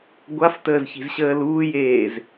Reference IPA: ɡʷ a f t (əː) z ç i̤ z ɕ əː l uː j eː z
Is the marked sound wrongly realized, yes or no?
no